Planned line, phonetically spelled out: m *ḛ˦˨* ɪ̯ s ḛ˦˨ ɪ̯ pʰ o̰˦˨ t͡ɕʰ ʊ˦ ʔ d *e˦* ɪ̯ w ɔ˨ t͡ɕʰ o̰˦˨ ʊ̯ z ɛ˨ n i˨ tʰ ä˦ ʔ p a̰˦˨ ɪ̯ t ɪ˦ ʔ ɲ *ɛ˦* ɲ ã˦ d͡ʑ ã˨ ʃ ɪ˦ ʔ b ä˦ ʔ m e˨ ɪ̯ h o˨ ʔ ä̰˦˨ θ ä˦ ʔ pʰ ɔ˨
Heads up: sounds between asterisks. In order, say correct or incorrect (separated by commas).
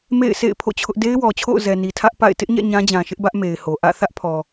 correct, correct, incorrect